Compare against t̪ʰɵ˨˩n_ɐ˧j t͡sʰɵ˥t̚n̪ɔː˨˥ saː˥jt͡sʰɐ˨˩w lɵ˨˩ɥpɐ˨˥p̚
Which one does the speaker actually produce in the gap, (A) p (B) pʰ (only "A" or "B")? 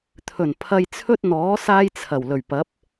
B